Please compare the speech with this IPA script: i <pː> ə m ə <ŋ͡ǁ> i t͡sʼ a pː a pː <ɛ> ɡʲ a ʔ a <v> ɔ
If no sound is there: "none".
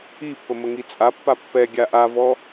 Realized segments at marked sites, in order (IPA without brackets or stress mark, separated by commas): pː, ŋ, ɛ, v